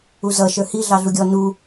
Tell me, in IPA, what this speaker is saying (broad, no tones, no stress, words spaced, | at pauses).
uzʌ ʃə˞hi ɮɑɮuɡʲɔ nu